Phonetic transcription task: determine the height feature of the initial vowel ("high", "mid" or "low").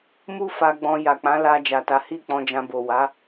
high